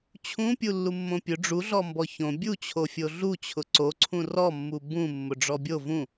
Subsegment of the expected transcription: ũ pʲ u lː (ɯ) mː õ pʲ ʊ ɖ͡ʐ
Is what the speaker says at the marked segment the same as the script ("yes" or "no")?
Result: no